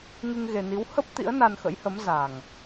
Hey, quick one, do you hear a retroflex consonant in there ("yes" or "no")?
no